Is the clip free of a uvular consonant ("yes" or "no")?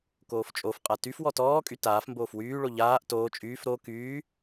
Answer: no